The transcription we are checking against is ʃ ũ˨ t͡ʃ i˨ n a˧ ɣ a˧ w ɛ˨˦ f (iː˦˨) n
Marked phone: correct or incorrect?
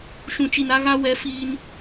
incorrect